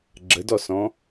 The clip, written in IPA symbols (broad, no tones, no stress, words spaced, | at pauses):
ɡ͡ǁədɔsɔ̃